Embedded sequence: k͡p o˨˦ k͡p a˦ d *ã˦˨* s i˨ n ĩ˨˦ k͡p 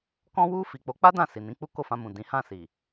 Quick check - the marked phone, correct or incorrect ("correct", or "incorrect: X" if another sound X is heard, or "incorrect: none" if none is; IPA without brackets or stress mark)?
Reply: correct